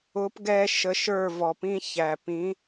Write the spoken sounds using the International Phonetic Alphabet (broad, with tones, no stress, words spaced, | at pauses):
ʊ˨˦pɡɛ˧ ʃə˧ʃə˞˦˨vɔ˨pĩ˦ çæ˨ pĩ˨˦